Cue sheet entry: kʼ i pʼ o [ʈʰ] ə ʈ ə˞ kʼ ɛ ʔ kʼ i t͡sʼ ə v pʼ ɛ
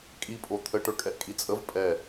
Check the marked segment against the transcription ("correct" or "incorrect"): incorrect